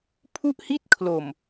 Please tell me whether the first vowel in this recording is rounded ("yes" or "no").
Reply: yes